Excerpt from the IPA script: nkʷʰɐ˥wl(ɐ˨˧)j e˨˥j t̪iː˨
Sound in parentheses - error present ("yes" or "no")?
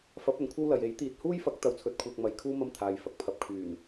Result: yes